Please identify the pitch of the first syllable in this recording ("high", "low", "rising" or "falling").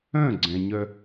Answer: falling